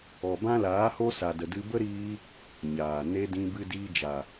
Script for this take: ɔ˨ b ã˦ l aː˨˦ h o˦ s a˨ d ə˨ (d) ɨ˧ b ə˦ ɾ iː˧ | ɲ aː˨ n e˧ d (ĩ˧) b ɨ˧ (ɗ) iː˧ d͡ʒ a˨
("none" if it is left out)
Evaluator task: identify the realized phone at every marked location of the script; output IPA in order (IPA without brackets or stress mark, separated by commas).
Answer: d, ĩ˧, d